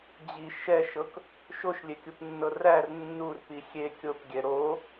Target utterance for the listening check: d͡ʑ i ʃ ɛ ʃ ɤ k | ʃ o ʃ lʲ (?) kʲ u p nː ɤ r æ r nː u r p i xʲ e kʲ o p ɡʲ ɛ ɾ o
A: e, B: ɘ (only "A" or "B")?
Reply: A